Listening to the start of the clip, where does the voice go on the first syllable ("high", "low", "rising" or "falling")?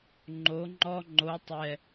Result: rising